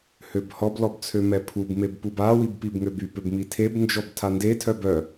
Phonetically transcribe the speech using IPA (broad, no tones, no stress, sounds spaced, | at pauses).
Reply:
h ø b h ɔ b l ɔ b t͡sʰ ø m ɛ pʰ u b m e b p u b a w i b p i b ŋ ø b y p ø b m i tʰ e b n d͡ʒ ɔ b tʰ a n d e tʰ œ b œ